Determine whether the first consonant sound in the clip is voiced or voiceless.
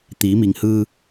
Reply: voiceless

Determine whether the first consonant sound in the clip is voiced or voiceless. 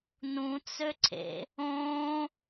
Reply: voiced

